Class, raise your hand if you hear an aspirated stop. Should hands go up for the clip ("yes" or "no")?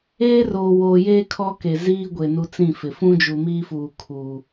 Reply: yes